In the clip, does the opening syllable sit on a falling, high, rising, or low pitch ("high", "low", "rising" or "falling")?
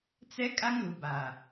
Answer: high